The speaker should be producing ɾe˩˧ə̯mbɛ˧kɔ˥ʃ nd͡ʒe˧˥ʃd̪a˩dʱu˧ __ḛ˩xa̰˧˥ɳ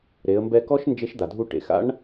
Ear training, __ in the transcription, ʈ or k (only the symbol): ʈ